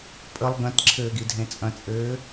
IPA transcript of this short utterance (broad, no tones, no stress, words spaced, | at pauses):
pʼəlˠ ɡɐ̃tǁʰɘːɡidʱẽ t͡sʼɐ̃t͡sʼɘː